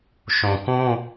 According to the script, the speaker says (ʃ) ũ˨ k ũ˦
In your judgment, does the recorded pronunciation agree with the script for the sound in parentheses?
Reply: yes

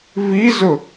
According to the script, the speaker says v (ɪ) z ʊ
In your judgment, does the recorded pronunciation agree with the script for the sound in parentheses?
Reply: no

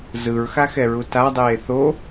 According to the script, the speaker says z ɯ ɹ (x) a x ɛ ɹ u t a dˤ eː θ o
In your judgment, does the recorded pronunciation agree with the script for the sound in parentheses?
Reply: yes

